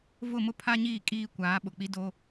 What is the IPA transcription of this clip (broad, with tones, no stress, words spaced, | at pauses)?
vʊ˦˨ mʊ˦pʰa˦ɲiː˦˨ kʼiː˦kʷaː˨˦ ɓʊ˨k͡pi˦ do˦